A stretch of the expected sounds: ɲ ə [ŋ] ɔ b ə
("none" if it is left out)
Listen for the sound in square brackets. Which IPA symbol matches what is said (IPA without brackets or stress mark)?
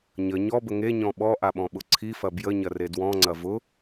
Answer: ɲ